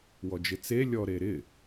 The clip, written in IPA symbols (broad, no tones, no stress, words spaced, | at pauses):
wɔd͡ʒɪt͡se lʲɔɾeɾɪ